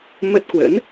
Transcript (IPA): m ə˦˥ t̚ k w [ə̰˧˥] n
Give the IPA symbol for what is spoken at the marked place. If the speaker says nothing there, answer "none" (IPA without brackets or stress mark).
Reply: ə̰˧˥